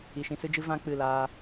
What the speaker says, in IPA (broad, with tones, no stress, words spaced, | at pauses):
i˨ʃĩ˧sɨ˦d͡ʒɨ˦ vã˦ k͡pɨ˦˨ laː˧